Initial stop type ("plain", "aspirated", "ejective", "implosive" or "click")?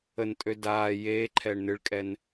ejective